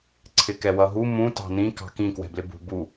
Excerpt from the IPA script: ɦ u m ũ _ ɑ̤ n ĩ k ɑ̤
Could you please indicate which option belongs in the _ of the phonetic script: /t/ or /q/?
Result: t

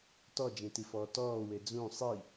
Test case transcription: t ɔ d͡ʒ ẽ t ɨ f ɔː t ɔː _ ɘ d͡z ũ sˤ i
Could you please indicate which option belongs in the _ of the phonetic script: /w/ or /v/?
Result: w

